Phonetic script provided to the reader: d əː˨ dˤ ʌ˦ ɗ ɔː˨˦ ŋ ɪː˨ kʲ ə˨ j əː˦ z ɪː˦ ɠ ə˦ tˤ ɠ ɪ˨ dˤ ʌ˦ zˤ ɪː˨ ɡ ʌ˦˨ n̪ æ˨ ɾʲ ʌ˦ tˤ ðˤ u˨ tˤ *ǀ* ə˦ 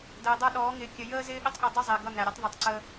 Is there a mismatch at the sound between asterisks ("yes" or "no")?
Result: no